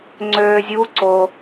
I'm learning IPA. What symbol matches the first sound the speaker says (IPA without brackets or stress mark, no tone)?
ŋ͡ǀ